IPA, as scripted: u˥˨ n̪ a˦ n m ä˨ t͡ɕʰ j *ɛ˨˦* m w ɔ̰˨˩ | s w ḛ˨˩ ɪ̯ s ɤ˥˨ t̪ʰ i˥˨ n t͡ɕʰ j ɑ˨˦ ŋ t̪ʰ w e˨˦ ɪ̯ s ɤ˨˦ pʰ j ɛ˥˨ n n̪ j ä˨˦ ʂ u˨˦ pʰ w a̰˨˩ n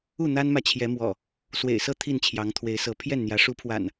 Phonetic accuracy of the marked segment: correct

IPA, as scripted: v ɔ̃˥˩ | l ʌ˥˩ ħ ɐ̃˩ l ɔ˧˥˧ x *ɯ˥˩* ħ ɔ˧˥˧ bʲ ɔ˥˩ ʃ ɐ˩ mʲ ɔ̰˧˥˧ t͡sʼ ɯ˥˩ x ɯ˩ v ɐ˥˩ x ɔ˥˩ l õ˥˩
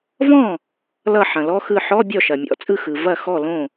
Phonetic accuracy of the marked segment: correct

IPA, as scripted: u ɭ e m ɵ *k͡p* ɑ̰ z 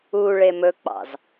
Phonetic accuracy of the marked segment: correct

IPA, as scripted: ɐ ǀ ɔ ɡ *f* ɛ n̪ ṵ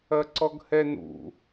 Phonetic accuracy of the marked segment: incorrect: h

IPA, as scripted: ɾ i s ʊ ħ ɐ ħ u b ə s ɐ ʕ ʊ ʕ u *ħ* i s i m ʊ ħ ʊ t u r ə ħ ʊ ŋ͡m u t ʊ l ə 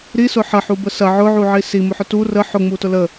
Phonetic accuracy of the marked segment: incorrect: ʕ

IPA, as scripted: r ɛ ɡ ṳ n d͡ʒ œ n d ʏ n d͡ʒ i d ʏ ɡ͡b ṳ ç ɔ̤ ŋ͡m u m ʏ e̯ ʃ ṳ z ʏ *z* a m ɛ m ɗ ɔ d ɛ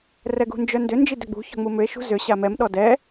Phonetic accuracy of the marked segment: incorrect: ɕ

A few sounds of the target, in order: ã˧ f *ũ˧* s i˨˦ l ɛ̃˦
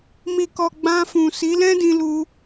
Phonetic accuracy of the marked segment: incorrect: ũ˨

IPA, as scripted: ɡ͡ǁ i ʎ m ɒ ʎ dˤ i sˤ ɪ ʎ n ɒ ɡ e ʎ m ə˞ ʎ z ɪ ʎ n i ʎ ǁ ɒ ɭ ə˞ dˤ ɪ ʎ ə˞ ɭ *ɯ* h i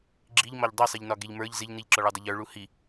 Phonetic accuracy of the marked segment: incorrect: u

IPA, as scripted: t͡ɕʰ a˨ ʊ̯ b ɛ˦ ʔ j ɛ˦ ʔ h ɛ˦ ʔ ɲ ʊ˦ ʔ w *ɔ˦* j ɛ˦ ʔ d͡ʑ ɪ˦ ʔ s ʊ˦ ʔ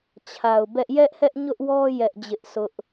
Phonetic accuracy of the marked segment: correct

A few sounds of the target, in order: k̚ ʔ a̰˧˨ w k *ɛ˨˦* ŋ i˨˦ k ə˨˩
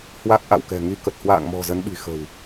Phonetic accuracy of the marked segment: incorrect: ɛ̤˨˩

